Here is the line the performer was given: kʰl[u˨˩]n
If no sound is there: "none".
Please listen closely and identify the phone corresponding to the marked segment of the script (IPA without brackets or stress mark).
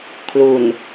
u˨˩